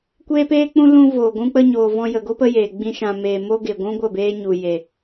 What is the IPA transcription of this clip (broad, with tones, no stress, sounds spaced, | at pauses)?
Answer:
kʷ eː˦ p eː˦ k͡p ũ˦ l ũ˦ v oː˨ ɡʷ ũ˦ k͡p ə˦ ɲ oː˨ v ɔ̃˧ j ə˨ ɡ o˦ p ə˧ j eː˨ ɡ͡b ĩ˧ ʃ ã˨ m eː˨ m o˦ ɡ e˨ ɡʷ ũ˦ ɡʷ ə˦˨ b eː˦ ɲ u˨ j e˨